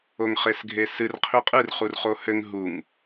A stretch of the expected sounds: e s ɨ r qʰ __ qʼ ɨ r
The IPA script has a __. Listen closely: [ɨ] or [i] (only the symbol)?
i